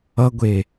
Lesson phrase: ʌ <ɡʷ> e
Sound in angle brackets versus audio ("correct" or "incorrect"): correct